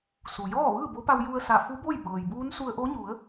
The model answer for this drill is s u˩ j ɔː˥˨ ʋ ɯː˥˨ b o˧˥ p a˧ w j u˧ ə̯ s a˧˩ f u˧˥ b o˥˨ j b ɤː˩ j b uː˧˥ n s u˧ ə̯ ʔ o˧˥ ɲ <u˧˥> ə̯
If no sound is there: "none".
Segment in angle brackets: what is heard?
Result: u˩˧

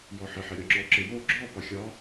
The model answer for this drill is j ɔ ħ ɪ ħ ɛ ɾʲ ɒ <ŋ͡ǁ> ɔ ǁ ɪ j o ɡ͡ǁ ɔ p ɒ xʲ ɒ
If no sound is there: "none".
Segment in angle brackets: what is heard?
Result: ŋ͡ǁ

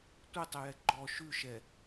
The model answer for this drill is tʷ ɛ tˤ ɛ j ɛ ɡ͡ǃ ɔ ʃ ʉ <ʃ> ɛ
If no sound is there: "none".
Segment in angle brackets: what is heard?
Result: ʃ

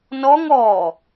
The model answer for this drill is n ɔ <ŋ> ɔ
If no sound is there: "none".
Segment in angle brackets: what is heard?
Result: ŋ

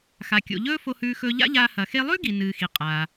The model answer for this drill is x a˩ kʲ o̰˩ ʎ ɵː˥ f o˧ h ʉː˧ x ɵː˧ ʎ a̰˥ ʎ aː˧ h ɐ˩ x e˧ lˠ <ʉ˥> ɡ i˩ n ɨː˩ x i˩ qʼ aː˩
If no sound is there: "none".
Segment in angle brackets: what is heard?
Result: ʉ˥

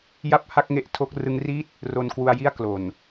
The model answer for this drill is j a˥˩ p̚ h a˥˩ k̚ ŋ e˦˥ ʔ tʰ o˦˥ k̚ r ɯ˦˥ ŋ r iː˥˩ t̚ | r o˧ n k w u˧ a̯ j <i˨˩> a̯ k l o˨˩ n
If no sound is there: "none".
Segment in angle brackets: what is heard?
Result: i˥˩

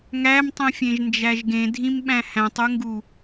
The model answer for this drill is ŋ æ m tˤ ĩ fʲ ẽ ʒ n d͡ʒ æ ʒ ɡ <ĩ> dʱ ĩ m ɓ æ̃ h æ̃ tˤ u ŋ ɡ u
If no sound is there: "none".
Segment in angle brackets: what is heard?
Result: ẽ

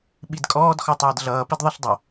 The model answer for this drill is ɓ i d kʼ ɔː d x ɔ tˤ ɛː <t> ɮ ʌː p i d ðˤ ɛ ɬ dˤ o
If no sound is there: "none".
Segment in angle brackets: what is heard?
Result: d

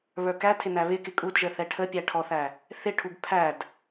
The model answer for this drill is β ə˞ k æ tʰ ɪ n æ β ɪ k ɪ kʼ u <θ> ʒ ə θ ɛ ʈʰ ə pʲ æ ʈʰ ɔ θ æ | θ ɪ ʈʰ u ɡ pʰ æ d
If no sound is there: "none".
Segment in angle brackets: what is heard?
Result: d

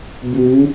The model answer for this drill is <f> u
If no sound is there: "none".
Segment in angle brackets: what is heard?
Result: b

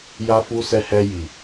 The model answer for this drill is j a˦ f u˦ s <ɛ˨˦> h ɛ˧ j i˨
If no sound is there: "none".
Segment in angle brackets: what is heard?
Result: ɛ˧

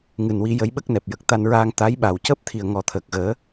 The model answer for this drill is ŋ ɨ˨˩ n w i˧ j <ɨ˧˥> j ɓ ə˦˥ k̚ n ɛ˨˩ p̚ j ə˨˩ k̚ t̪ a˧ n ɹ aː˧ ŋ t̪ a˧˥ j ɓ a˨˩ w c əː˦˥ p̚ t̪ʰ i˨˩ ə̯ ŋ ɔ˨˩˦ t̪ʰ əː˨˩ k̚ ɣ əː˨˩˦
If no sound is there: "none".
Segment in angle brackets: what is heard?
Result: ə˧˥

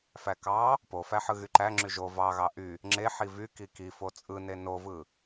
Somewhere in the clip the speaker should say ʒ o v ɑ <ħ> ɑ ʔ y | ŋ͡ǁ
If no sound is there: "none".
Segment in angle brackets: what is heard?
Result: ɣ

